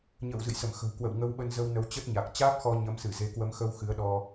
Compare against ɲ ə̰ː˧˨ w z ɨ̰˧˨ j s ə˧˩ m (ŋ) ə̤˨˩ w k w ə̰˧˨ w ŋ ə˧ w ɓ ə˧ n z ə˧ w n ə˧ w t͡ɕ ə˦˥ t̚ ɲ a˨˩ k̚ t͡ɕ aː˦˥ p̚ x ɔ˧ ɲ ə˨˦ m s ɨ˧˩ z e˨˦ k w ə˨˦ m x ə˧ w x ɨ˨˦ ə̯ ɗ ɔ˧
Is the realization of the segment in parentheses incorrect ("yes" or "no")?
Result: yes